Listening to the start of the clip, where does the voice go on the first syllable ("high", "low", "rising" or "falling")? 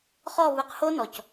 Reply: falling